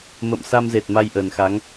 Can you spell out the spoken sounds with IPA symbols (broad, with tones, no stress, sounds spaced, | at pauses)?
m ə̰˧˨ m s a˧ m z e˨˩ t̚ m a˧ j ʔ ə˨˩ n x a˨˦ ŋ